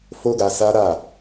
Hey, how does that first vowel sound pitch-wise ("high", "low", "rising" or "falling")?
high